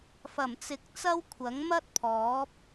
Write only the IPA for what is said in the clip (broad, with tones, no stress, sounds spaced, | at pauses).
f ɐ˨˩ m t͡s ɪ˨ k̚ t͡s ɐ˥ w kʷʰ ɐ˨˥ ŋ m ɐ˥ t̚ pʰ ɔː˨˥ p̚